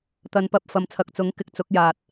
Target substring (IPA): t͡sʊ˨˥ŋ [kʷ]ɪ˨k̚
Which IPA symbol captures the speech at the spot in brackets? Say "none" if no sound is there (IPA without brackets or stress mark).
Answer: k